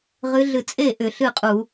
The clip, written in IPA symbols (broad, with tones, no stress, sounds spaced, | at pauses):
ʁ ɨ˧˥ ɮ ɨ˧ t͡sʼ e˥˩ ʔ ʏ˧˩˧ ɬ ɨ˥˩ qʼ u˧˩˧